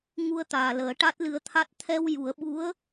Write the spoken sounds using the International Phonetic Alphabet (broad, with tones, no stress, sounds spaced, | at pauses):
ŋ u˧ ə̯ t̪ aː˨˩ l əː˨˩˦ ʈ a˦˥ t̚ l ɨ˧˥ ə̯ t̪ʰ a˦˥ t̚ t̪ʰ ɛ˧ w j u˨˩˦ ə̯ ɓ u˧˥ ə̯